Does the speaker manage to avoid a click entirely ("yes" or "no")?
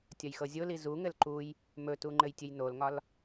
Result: no